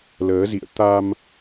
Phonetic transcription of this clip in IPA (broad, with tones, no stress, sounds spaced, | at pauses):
l əː˨˦ z ḭ˧˨ ə̯ t̪ a˧ m